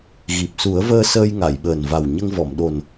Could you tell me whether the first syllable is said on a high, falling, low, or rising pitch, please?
low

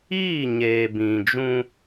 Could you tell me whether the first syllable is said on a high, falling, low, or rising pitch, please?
falling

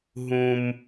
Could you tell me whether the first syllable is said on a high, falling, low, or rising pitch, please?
low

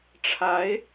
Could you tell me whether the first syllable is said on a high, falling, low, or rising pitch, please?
rising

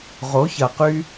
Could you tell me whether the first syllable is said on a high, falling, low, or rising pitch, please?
rising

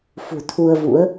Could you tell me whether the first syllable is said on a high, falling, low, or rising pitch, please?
low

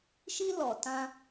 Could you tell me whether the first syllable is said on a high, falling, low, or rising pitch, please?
high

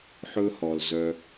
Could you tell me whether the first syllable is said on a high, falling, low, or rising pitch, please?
high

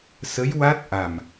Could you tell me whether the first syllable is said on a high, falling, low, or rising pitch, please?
rising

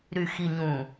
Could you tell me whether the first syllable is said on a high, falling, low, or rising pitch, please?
low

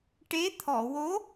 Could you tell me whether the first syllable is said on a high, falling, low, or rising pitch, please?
rising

